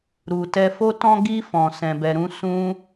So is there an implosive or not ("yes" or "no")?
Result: no